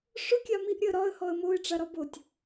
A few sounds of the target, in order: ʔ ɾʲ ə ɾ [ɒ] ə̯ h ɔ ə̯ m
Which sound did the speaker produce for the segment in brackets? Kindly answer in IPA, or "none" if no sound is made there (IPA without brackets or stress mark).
ɒ